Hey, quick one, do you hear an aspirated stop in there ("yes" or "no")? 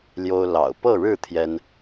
yes